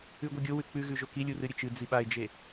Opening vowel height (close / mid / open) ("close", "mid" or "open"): close